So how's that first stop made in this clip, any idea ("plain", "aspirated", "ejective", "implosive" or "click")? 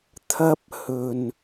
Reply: aspirated